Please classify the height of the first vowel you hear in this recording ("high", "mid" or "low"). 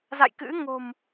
low